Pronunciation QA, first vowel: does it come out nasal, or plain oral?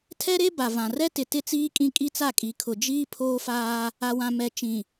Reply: oral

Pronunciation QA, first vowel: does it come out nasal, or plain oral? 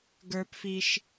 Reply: oral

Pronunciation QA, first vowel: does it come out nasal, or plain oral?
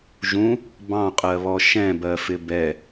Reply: nasal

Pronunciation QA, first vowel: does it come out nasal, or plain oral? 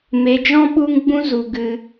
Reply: oral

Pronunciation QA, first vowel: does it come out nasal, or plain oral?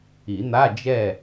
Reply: oral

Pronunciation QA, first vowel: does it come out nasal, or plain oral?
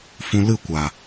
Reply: nasal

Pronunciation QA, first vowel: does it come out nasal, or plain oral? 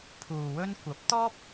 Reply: oral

